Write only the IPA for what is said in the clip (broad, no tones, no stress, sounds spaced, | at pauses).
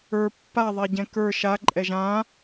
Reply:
ə˞ pː a ðˤ ɛ ɟ ɛ̃ k ə˞ ʃ a ǃʼ ɛ ʒ ã